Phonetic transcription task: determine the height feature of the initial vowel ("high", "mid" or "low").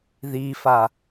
high